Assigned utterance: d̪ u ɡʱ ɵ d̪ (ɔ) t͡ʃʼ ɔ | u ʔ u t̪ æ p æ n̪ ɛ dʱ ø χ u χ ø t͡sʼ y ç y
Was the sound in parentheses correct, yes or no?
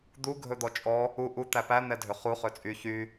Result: yes